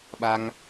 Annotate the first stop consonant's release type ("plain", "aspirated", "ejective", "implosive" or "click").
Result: implosive